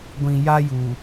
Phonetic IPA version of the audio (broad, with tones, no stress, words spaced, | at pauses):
ɡʷĩ˨ja˦juː˨